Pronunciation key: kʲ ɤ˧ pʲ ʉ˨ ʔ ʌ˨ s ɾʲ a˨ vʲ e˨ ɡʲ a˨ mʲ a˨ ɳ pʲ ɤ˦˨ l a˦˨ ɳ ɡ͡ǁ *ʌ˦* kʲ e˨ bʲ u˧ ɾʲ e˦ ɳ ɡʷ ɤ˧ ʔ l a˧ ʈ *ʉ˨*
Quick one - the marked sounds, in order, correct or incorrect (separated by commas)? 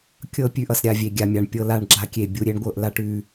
incorrect, correct